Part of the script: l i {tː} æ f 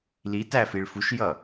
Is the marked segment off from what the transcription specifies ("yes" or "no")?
yes